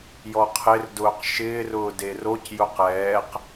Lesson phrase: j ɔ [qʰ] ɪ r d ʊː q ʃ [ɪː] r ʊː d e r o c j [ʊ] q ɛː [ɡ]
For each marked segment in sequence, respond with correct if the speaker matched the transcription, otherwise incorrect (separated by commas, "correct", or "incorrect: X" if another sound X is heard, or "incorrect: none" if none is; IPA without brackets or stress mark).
correct, correct, correct, incorrect: q